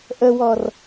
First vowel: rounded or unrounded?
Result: unrounded